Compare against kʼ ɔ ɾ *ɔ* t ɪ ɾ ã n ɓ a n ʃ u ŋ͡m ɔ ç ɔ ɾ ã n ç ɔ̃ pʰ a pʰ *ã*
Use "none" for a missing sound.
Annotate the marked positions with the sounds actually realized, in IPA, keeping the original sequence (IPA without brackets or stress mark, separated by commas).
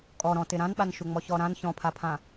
ɔ̃, ã